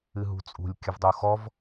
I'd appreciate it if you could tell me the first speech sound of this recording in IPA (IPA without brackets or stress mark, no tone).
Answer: ɨ